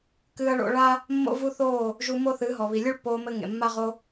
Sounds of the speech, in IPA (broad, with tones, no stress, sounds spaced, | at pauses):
k ɨː˧ ɐ̯ ɭ o̰˧ ɭ a˦ | mː o̰˦ v u˦ θ oː˦˨ | ʒ u˧ m o˦ θ ɨ˨˦ ɦ ɔ˨ β i˨ lʲ ɨ˦ ɭ pː oː˧ m ɘ˧ ŋ ḛ˨ mː a˦ ʁ o˧